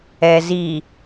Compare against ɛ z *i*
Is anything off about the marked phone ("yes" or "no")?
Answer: no